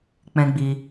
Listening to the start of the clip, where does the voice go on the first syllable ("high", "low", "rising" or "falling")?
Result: high